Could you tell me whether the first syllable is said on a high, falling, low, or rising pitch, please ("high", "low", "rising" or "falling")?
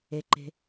low